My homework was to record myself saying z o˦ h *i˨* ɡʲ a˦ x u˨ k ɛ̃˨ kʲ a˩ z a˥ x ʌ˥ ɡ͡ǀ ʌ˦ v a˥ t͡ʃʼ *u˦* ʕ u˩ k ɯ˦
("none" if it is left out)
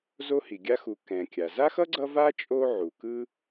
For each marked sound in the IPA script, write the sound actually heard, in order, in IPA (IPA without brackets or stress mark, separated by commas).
i˩, o˦